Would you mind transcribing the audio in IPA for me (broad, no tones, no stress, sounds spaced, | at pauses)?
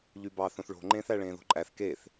ʎ y b ɑ θ õ θ ɭ o̤ ŋ͡ǃ ẽː θ æ ɭ ẽː ð o̤ ǃʼ æ θ k e θ